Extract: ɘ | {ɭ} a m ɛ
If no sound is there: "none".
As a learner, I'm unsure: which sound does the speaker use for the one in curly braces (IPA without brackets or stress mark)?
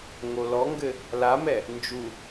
l